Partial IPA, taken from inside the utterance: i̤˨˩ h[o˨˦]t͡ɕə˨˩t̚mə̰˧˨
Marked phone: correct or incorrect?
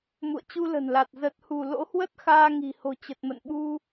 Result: incorrect